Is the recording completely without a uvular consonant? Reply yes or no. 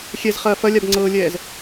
no